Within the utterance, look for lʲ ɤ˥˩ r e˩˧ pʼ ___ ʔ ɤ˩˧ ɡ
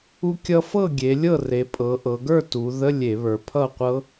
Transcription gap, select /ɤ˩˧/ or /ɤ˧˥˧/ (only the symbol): ɤ˩˧